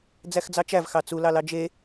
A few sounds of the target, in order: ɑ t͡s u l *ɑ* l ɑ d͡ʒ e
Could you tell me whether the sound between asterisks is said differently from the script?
no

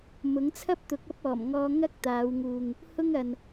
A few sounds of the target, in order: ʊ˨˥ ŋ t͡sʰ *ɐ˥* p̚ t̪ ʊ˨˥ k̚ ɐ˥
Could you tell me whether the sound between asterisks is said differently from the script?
no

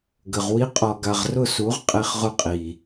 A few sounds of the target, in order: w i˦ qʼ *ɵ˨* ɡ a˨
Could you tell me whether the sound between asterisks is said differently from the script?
yes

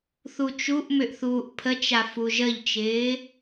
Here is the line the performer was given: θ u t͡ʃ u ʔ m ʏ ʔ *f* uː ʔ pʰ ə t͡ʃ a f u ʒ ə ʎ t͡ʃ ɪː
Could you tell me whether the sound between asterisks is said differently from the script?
yes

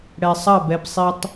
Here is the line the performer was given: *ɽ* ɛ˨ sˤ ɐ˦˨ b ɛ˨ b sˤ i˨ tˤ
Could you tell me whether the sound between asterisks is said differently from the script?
no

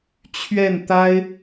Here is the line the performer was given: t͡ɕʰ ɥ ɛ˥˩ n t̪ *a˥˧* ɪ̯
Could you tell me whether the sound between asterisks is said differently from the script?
yes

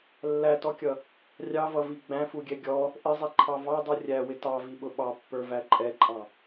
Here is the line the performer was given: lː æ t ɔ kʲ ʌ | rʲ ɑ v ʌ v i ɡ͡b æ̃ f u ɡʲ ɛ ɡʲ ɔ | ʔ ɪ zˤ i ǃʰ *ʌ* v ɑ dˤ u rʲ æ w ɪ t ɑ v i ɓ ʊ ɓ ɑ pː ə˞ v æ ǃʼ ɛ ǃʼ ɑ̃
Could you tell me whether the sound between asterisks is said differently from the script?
yes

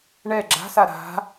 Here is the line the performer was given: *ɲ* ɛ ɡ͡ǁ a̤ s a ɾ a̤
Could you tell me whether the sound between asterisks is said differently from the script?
yes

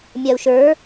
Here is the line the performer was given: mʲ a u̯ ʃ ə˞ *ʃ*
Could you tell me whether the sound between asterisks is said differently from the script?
yes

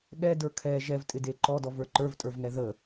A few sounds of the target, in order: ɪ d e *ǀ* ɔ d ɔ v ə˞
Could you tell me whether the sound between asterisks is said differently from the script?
yes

